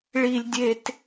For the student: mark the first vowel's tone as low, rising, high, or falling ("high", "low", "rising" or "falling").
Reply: high